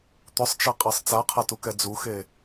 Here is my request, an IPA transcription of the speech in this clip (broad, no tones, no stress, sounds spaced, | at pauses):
t̪ ʊ sˤ t͡ʃ a qʼ ɛ sˤ t͡s a qʰ a t u k ɛ d͡z u x e